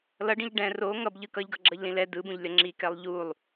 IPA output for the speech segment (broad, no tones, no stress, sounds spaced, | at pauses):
l ʌ ɖ ĩ ʎ ɖ ɛ̃ r o ŋ ʌ b ʎ ɯ k ʌ ʎ ɡ ʌ ɡ͡ǁ ʌ ʎ l ĩ l ɛ d ɯ b ũ ʎ lʲ ʌ ŋ͡ǁ i k ɛ lˠ ʎ u lˠ